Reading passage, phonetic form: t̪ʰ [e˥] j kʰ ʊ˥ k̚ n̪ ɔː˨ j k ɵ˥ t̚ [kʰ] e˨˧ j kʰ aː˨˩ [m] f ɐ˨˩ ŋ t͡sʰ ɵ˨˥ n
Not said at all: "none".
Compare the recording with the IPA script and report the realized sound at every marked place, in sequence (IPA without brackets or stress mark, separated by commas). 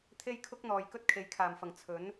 e˥, kʰ, m